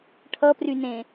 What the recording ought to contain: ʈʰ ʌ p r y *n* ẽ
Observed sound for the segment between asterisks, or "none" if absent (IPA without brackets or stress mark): n